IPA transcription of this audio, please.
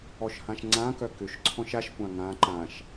ɔ ʃ h ã ʃ ŋ͡ǀ ã k œ k ʏ ʃ ǀʰ ɔ̃ ʃ a ʃ kʷ ã ŋ ã ǃ ã ʃ

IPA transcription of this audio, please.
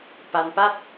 p a˧ n p a˥˩ t̚

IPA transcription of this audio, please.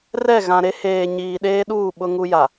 r ɛ˦˨ ɣ ã˨ ɾ e˦ h eː˨ ɲ iː˨ ɗ eː˦ ɗ uː˦˨ ɓ ʊ˦ ŋ u˦ j a˨

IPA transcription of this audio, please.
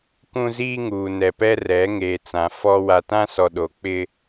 k ũ˦ z iː˦ ŋ uː˨ n ɛ˨ p ɛ˦ r ɛ˨˦ ŋ eː˨ t͡s ã˨ f ɔ˦ w a˨ t ã˦ s ɔ˨ ɗ o˨ k͡p ɪ˦

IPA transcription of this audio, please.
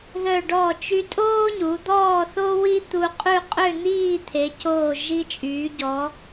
ð œ˧˩ ɖ ɔː˧˩ t͡ʃ y˧ tʼ oː˥ ɲ u˩˧ d̪ ɔː˥˧ θ o˥ w i˥ t̪ u˧ qʼ ʉ˥˧ qʼ ø˥˧ n̪ iː˥˧ t̪ʰ e˩˧ c oː˧˩ ʒ i˧ t͡ʃʼ yː˩˧ ɟ ɔ˩˧

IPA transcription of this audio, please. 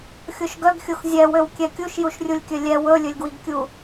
xʲ o ʃ ɡ œ ɡ xʲ o x zʲ ɛ w ø w kʲ ɛ kʲ u ʃ j u ʃ rʲ u lʲ kʲ œ lʲ ɛ w ɵ lʲ ɵ lʲ ɡ w i ɡ kʲ u

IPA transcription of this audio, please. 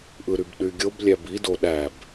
ʔ ɯ ɾ y b ɗ y ɡʲ o b lʲ æ b i d o ɗ æ b

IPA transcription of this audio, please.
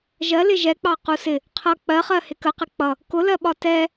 ʒ ɜ l ɪ ʒ ɛ k͡p ɑ q u s ɪ | qʰ ʌ k͡p ɜ χ ɜ h ɪ k ə q ɪ k͡p ʌ | k ʊ l ɜ ɓ ɒ t ɛ

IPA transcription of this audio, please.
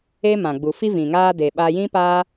e˦ m ã˨ ɡ͡b u˨ f i˦ v ĩ˨ ŋ aː˧ d e˨ ɓ aː˧ j ĩ˦ p aː˧

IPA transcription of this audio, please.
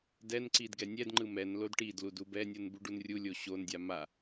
d ɛ n ǀ i d ɡ ɛ nʲ ɛ d ŋ͡ǃ ɯ m ɛ n l o d ʈ i d l u d u b ɛ nʲ u n b u ɖ u n rʲ u lʲ o ɕ o n dʲ a m a

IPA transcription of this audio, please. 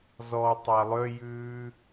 z ɔ tˤ æ lˠ ø j ʉː

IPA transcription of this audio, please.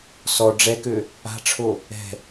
s ɔ ɖ͡ʐ ɛ k ø | a̤ ʈ͡ʂʰ o | ɛ̤

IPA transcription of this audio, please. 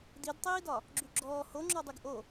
d i d tˤ iː d ɒ | ɡ͡ǁ y ɡ͡ǁ ɔː h o ŋ͡ǁ ɔ dˤ y ɡ ʔ o

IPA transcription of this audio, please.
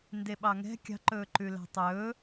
n d e ɓ ɑ ŋ ɛ̤ kʲ ɑ̤ ǃ ɵː ǃ ʉ l æ̤ tˤ ɵ

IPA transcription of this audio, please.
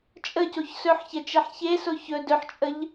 t͡ʃʼ ə c o ç s ɵ ħ ç ɛ t͡ʃ ɛ ħ ç e s o ç ɵ d ɵ ħ t͡ʃʼ ə ʎ

